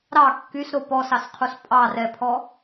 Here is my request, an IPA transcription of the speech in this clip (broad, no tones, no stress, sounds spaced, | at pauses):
ɾ ɑ kː y s ɾ o p ɔ s ɑ s qʰ u s pʼ ɑ r ɛ pʰ ɔ